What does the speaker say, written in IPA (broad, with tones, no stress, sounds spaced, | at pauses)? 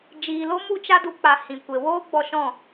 d͡ʒ iː˨ l o˦ m u˦ t͡ʃ a˦ d u˧ k͡p a˨ h ĩ˨ kʷ e˨ w oː˦ ɡ͡b ɔ˧ ʃ ɔ̃˦˨